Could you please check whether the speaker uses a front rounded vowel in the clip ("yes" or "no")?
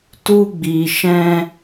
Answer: no